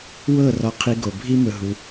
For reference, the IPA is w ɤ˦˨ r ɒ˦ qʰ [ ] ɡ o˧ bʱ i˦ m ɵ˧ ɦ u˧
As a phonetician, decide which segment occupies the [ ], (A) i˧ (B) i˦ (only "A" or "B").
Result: B